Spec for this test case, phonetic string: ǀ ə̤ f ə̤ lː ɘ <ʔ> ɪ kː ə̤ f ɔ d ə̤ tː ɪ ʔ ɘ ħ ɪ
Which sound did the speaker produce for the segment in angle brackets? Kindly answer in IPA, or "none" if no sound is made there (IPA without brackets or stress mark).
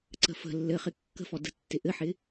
χ